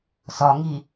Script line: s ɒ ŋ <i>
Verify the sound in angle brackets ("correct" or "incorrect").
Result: correct